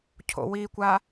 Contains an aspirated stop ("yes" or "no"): yes